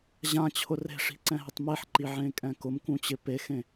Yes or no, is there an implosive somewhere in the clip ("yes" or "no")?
no